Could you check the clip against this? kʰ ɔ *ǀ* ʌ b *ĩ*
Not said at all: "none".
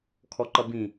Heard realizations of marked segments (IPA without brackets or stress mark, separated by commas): ǃ, ĩ